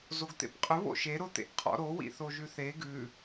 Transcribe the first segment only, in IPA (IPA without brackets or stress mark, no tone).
z